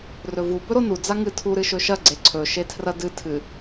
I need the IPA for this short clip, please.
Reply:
r ɵ v u b ɵ ɾ o n u d͡z a ŋ ɨ tʰ u ɾ ɨ ʃ ɵ ʃ ɐ ɡ͡ǀ e ǀʰ ɵ ʃ e tʰ r ɐ d ɨ tʰ ɨ

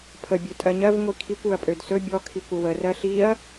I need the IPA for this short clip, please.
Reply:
pʰ ə bʲ ø tʼ ɜ ɲ ɜ v ŋʷ i kʰ i kʷ ø ɐ̯ pʼ ø d s ɵ bʲ ɔ kʰ i kʷ ə w ə r ɜ ɬ i ɐ̯

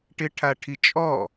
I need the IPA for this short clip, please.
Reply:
ʈ ɪ ʈʰ a ʈʰ i t͡ʃʼ ɔ

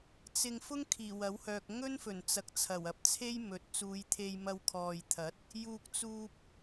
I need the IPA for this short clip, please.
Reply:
t͡s ɪ˧ ŋ f ʊ˥ ŋ kʰ iː˨˩ w ɐ˨˥ w h œː˨ k̚ ŋ ɵ˥ n f ɵ˨˩ n t͡s ɐ˨ k̚ t͡sʰ ɐ˨˩ w ɐ˨˥ p̚ t͡sʰ e˥ j m ɵ˨˥ t̚ t͡s uː˨˧ j t̪ʰ e˧ j m ɐ˧ w kʰ ɔː˨ j t̪ʰ ɐ˨˥ t̚ | j uː˧ k̚ t͡s uː˧ p̚

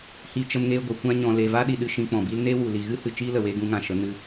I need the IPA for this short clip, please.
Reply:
h i˨ t͡ʃ ə˧ m ŋ eː˧ ɡʷ a˨ kʷ ã˧ ɲ ɔ̃˨ l e˨ v a˦ ɗ i˨ ɗ ɨ˨ ʃ ĩ˧ k͡p ɔ̃˨ b i˦ l n e˦ w u˨ l i˨ ɣ ɨ˦ h ɨ˨ t͡ʃ iː˦ l ə˨ w eː˧ ɡ ũ˦ ŋ ã˧ ʃ ə˨˦ n ɨ˧

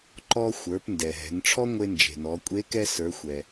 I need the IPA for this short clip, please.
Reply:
ǃ ɔ˧ xʷ ə˞˩˧ p n d ɛ˩ ɦ ɛ̤˩˧ n ʈ͡ʂʰ ɔ˥ ŋʷ e˧ n d͡ʒ e̤˩ n ɔ˩˧ kʷʼ e˧˥ k ɛ˧ s ə˞˩˧ xʷ ɛ˩

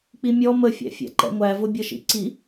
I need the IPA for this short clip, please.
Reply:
k͡p i mʲ ɔ m ə fʲ æ̰ fʲ æ̰ ǃ ɛ̰ ŋʷ æ v ʊ bʲ ʌ ʃ ḭ ǀ i

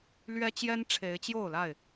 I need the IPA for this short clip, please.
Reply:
l ɥ ɛ˦ t͡ɕ j ɛ˦ n ʈ͡ʂʰ e˨˦ ɪ̯ t͡ɕ j o˥˨ ʊ̯ l a˥˨ ɪ̯

